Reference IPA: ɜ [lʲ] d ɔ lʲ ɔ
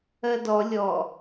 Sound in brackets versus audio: incorrect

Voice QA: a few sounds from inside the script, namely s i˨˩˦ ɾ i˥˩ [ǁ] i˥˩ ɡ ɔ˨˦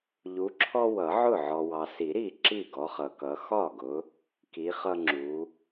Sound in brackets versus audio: correct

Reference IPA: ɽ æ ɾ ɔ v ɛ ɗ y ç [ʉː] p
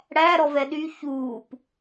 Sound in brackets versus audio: incorrect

